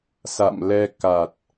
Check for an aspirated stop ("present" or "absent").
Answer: absent